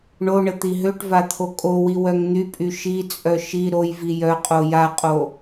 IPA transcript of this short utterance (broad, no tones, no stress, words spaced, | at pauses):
ɳoɳə t̪iɦøʈva t̪ʰokʼowi wœŋn̪ypʼy ʃit͡sʼœ ʃi ɾojvi jœqʼo jaqʼo